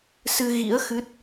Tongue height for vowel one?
high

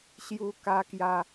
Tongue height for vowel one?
high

